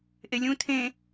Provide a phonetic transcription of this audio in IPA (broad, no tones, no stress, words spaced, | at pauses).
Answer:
ʔelʲũ tʰẽ